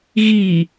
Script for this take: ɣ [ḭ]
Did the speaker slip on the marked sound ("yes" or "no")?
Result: yes